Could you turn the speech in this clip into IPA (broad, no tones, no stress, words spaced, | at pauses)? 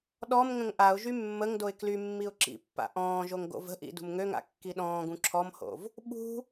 ɗɔm ŋə̃ŋʔaʊ̯ʒy mːəŋdoɪ̯ kly mːiʊ̯ǁḭpːa̰ ʔɔ̃ːʒoŋ ɡo̰və̤ʔḭ dṳmŋøŋa̰ kːiɗɔ̃ːɡũ ǁʰɔmho̰v | ɓṳ